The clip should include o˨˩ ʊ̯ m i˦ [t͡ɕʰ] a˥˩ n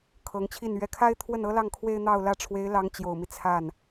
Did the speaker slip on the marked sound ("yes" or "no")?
yes